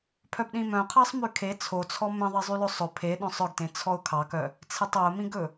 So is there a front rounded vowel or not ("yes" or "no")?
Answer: yes